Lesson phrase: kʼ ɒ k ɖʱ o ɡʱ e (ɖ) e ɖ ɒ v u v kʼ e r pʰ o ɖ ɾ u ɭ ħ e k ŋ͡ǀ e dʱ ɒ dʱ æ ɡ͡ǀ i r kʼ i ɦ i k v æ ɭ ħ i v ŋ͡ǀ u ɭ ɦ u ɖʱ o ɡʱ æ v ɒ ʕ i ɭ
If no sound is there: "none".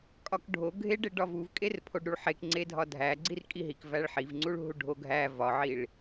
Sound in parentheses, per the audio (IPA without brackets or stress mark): ɖ